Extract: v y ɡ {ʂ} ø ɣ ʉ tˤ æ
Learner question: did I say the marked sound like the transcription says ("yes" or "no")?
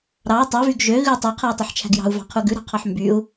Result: no